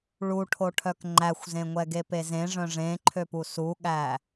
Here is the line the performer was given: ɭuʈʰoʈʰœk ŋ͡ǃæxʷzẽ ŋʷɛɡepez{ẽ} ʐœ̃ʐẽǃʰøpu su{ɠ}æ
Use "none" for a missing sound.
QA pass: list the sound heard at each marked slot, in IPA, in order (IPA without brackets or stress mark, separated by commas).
ẽ, ɠ